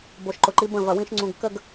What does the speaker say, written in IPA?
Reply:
b o˨ ʃ ǃ ʊ˨ ǃ i˦ b ə̃˦˨ v ɐ˨ w ĩ˦ ʃ ŋ͡ǀ ũ˨ ɡ k ə˦˨ ɡ

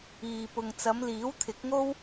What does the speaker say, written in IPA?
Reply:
iː˨ p ʊ˨ ŋ t͡s ɐ˨˧ m l iː˨˥ w t̪ʰ ɪ˨˥ k̚ ŋ o˥ w

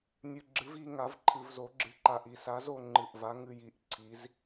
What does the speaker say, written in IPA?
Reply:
nʲ ɨ˧ ɡ͡ǁ ɨ˧˥ v i˧ ŋ a˧˥ v ǃʰ ɨ˧ v z o˧˥ ɡ͡ǁ ɨ˧ ǃ a˧ ʔ i˧˩ s a˧˥ z o˧ ŋ͡ǃ ɨ˧˩ ʔ v a˧˥ ŋ ɨ˧ j i˧˩ ʔ ǀʰ i˧˥ z

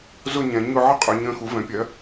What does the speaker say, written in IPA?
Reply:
z ʊ˦˨ ɲ ɛ̃˩˧ ɲ ʊ˦˨ ʕ ə˦˨ qʼ ʏː˩˧ ɲ ə̃ː˩˧ x u˩˧ v ɛ̃˩˧ pʲ ɜ˩˧

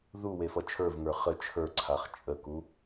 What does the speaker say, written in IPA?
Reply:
ð u w e f ʌ t͡ʃʰ ə˞ v ŋ ə˞ χ ə t͡ʃʰ ə˞ ǀʰ a χ t͡ʃʼ ə k u

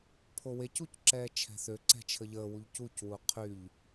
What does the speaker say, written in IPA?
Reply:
pʰ o w e c u c ǁ ɛː t͡ʃʰ ɛ̤ θ ø ǀ ɛ̤ t͡ʃʰ ə ʎ əː w u ʎ c u c w u qʰ y ʎ

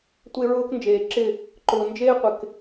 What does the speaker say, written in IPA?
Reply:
tʷ e˧ ɹ ʊː˧ k n d͡ʒ eː˨ ǁ ɪ˦˨ | ǃ ʊː˨ n d͡ʒ eː˦ qʷ ɪ˨ k

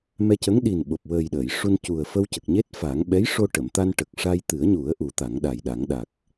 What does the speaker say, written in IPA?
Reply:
m ɛ˧ c ə˧˥ ŋ ɗ i˨˩ n ɓ o˨˩ p̚ w əː˨˩ j ɗ əː˨˩˨ j ʂ u˧ n c u˨˩ ə̯ f ə˧ w c ə˨˩ k̚ ɲ e˦˥ t̚ f a˨˩˦ ŋ ɓ ɛ˧˥ j ʂ o˧ ʈ ə˨˩˨ m t̪ a˧ n ʈ ə˨˩ k̚ ʂ a˧ j t̪ ɨ˨˩˦ ə̯ ɲ u˨˩˦ ə̯ ʔ u˨˩˦ t̪ a˨˩˦ ŋ ɗ a˨˩ j ɗ a˨˩˦ ŋ ɗ a˨˩ k̚

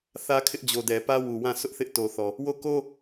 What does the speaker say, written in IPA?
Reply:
θ ä˦ kʰ ɪ˦ ʔ d͡ʑ o˨ d ɛ˨ p ä˦ w u˨ w ã˦˨ sʰ ʊ˦ ʔ θ ɪ˦ ʔ t o˨ θ ɔ˨ | w o˦˨ k o˦

